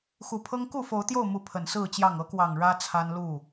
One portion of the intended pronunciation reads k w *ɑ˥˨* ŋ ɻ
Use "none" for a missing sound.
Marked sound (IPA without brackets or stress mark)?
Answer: ɑ˨˩